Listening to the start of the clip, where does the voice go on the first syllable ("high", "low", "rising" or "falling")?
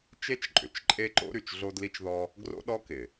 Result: high